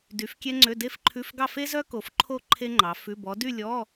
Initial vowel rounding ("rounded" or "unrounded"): rounded